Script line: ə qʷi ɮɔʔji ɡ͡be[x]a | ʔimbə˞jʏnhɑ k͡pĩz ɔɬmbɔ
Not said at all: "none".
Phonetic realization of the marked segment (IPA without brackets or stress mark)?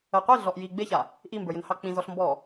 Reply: ç